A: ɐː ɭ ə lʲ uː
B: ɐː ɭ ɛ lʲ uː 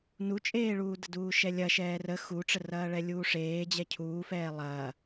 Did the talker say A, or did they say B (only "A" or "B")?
B